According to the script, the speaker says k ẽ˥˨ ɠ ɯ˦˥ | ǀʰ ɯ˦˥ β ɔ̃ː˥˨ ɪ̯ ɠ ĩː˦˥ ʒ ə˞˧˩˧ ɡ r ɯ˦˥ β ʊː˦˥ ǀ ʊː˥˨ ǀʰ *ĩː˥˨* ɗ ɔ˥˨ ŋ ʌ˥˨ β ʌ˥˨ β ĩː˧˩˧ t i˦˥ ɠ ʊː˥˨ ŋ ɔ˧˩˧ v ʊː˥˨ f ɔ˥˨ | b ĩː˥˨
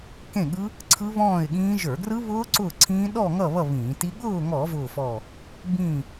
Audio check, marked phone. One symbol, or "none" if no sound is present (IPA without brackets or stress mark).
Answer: ĩː˦˥